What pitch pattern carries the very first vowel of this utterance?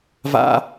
high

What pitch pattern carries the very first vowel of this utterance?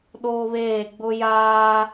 high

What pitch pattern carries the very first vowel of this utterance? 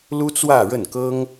high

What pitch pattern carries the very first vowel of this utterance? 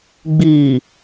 low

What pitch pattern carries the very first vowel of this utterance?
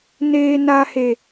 high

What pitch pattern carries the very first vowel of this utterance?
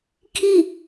falling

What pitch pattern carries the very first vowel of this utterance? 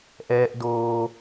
high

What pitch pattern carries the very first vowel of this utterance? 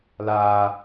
high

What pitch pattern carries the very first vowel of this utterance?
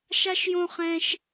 high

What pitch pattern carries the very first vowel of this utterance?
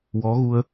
rising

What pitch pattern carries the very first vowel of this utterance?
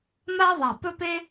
high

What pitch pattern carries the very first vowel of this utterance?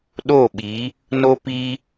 falling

